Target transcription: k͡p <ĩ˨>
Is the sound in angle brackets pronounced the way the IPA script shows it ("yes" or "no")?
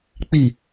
no